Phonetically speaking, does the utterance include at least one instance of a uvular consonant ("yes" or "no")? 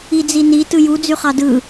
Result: yes